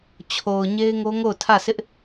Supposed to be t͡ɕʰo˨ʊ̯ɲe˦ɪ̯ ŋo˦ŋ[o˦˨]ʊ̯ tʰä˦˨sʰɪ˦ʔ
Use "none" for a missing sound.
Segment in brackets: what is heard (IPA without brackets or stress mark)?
o˦˨